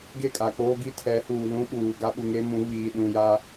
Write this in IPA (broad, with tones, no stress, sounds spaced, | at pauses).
ɡ e˦˨ kʼ a˨ k͡p oː˦ ɡ i˦ tʰ ɛ˨˦ h uː˨ l ũ˦ ɓ uː˨ ɡ a˦ ɓ u˨ ŋ e˦ m ũ˨˦ β iː˨ ɗ ũ˨ j a˦